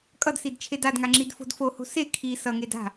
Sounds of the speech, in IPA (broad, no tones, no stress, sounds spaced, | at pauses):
kʼ ʌ d s i d t͡ʃʰ e d a d ŋ a ŋ͡ǁ i d f o̤ d f o h o̤ s e kʰ i s ʌ ŋ e d a̤